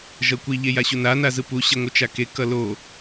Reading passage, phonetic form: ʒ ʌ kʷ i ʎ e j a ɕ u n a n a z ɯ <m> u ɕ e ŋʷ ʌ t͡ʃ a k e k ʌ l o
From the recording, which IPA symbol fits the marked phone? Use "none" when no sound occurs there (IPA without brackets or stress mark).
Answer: p